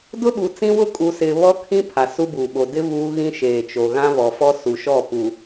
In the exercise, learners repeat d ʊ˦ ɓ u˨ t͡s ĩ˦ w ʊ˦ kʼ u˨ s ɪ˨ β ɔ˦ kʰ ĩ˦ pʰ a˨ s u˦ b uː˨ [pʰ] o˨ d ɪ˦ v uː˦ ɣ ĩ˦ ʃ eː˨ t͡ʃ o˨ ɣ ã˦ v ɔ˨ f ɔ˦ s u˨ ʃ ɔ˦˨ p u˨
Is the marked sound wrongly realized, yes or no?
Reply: yes